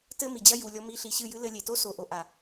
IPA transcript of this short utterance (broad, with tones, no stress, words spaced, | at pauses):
tɘ˦ mi˨d͡ʑɐ˦ju˨ lʲɔ˧mi˧ ɬi˨ɕɨ˦˨jɨ˦lɘ˧ lʲe˨to˦so˨ ʔo˧ʔa˨